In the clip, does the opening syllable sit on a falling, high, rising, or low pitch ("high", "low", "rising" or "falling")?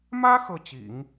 high